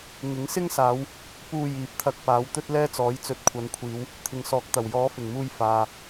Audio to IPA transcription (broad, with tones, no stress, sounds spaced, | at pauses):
ŋ ɪ˨˥ ŋ s ɪ˥ ŋ s aː˨˧ w | p uː˧ j iː˨˥ p̚ t̪ʰ ɐ˧ k̚ p aː˨˥ w t̪ ɵ˥ t̚ l ɛː˥ t͡s ɔː˨˥ j t͡s ɵ˨˥ t̚ kʷʰ ɐ˨˧ n kʷʰ iː˨˧ w | t̪ʰ ɪ˨ ŋ s ɔː˨˥ k̚ t̪ ɐ˨˩ w j ɔː˨˥ f ɪ˨˩ ŋ m uː˧ j f aː˧